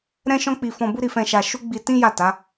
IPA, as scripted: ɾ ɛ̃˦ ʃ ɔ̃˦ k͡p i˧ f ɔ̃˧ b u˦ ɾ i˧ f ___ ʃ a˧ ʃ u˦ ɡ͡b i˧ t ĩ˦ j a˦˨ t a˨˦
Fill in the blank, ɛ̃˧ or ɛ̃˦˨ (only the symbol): ɛ̃˧